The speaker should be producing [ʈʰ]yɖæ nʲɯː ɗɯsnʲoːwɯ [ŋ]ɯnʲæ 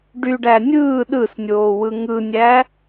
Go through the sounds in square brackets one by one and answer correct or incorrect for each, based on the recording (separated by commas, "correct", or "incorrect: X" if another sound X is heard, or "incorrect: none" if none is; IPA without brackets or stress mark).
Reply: incorrect: ɖ, correct